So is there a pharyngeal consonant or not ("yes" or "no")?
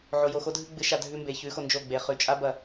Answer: yes